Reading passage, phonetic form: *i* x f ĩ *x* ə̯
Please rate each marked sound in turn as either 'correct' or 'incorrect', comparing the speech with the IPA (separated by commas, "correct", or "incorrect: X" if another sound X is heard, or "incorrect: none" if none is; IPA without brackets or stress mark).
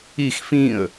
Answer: correct, incorrect: none